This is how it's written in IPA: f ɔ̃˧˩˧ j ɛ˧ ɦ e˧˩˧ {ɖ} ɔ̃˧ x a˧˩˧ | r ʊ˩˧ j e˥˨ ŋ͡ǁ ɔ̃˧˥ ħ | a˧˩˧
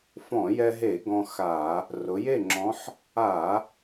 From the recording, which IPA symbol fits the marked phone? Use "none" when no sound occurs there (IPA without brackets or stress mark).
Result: ɡ